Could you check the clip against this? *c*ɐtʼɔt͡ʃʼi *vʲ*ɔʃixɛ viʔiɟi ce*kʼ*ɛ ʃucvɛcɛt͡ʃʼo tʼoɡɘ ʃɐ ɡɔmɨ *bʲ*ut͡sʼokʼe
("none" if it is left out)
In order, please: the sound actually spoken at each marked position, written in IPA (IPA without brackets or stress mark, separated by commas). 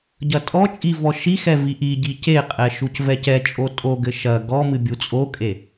ɟ, v, qʼ, bʲ